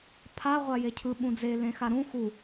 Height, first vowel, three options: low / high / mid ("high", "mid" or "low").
low